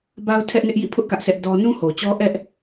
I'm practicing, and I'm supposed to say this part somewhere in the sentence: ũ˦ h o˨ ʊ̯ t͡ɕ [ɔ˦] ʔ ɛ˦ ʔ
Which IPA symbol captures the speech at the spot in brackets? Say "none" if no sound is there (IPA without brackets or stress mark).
ɔ˦